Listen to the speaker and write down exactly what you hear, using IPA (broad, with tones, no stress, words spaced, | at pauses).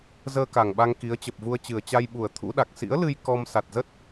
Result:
zəː˧ka˨˩ŋɓa˧ŋ ki˨˦ə̯t͡ɕə˨˩p̚vu˧ə̯t͡ɕɨ˨˩ə̯ t͡ɕa˧jɓu˨˩ə̯ t̪ʰṵ˧˥ɗa˨˩k̚ sḭ˧˥ə̯lɨ˧j kɔ˧m sa˨˩t̚zə˦˥t̚